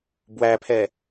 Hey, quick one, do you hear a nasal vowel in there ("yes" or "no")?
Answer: no